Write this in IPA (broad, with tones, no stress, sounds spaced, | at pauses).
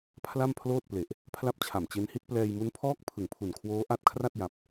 pʰ l a˥˩ m pʰ l oː˥˩ t̚ p l e˨˩ ʔ | pʰ l a˥˩ p̚ t͡ɕʰ a˨˩ m t͡ɕ e˦˥ n h i˦˥ t̚ p l ɛː˧ j m u˦˥ n pʰ ɔː˥˩ k̚ pʰ ɯ˨˩ ŋ pʰ u˨˩ n kʰ w oː˦˥ ʔ a˦˥ t̚ kʰ r a˥˩ t̚ j a˨˩ p̚